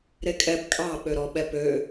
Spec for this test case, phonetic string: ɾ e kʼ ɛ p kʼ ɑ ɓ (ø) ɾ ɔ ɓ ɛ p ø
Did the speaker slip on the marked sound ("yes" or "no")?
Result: no